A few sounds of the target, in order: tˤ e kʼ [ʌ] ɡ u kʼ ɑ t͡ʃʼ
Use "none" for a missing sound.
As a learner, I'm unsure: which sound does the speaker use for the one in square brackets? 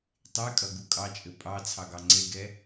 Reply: ʌ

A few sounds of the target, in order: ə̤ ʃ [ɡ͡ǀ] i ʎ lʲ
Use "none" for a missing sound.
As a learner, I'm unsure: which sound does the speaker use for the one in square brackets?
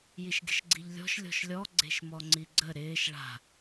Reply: ɡ͡ǀ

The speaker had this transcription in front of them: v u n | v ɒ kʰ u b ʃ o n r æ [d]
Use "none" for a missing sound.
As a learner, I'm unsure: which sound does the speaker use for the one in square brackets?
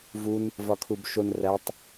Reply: tˤ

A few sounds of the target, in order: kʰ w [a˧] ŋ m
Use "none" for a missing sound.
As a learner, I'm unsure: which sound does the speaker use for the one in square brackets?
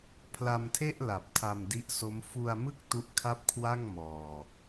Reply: a˥˩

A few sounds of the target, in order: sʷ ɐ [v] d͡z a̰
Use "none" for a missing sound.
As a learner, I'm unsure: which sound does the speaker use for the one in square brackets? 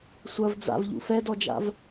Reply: v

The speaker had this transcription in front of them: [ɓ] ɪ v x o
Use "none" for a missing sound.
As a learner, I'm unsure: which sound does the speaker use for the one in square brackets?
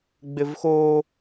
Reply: ɡ͡b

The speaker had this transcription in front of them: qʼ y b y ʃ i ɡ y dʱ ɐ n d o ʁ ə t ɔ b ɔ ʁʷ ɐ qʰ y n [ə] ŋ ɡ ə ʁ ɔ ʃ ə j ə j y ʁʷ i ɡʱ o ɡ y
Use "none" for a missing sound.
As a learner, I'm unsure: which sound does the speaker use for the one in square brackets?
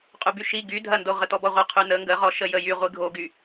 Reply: ə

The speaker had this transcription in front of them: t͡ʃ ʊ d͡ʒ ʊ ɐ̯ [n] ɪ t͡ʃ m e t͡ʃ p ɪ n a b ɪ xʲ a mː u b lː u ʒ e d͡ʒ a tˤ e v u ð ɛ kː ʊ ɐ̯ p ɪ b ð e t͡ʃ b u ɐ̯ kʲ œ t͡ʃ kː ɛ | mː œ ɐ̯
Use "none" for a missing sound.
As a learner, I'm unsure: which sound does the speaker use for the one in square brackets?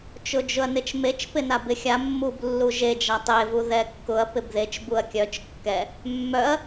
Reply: n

